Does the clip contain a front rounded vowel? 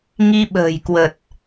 no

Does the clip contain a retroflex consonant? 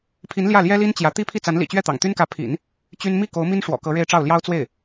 yes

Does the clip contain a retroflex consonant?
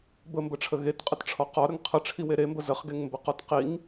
yes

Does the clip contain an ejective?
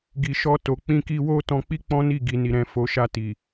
no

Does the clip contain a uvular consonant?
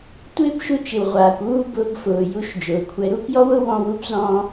yes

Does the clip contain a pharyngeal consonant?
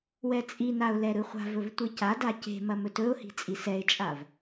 no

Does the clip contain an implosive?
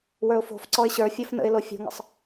no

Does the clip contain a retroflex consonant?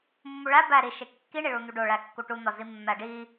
yes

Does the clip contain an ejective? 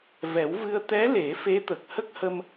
no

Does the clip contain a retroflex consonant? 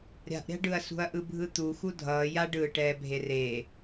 yes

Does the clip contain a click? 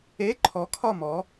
yes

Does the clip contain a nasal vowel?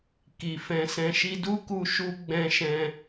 yes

